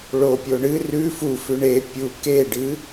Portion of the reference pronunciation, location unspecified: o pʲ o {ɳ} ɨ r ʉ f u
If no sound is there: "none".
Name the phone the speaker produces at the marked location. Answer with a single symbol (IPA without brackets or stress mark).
ɳ